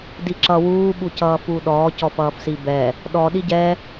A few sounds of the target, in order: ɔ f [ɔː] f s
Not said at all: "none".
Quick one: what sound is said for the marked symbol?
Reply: ʌː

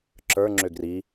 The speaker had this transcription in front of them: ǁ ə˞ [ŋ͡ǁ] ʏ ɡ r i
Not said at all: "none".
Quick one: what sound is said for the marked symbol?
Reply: ŋ͡ǁ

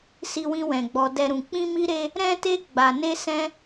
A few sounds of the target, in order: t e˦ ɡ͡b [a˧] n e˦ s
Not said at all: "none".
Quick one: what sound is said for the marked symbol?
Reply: a˧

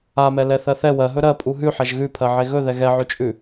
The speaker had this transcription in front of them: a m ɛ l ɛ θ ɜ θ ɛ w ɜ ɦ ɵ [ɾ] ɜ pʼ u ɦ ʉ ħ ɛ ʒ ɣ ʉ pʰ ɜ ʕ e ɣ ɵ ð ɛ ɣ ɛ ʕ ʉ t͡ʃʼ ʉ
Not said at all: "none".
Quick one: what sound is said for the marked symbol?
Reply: ɾ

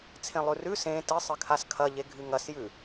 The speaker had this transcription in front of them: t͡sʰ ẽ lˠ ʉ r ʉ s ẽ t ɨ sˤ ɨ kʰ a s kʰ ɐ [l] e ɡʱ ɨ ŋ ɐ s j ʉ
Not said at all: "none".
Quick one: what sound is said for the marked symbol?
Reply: ʎ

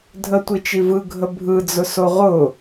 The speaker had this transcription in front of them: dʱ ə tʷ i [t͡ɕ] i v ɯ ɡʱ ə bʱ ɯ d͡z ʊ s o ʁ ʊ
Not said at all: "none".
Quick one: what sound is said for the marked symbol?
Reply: t͡ʃ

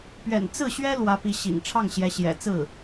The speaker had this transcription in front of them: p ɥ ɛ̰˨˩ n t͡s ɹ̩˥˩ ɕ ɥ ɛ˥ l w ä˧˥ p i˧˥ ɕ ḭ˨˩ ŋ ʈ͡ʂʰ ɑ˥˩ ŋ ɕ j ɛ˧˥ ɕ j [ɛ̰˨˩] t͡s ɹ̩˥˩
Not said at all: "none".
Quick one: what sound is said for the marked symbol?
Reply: ɛ̰˨˩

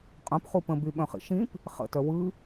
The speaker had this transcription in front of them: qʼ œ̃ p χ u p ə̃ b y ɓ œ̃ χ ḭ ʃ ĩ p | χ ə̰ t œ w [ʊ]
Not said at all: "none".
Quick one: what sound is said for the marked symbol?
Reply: ɯ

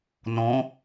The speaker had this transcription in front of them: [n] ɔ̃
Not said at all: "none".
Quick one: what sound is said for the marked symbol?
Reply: n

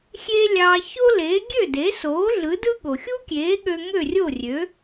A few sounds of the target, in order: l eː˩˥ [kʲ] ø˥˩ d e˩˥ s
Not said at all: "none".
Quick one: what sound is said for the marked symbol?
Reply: ɡʲ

